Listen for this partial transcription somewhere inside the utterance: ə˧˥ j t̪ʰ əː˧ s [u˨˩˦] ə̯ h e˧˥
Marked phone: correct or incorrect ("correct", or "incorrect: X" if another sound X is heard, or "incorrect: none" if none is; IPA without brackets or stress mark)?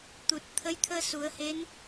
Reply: correct